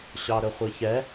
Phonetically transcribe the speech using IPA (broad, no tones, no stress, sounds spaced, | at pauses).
ɕ ɑ ɾ ɵ χʷ i ç ɛ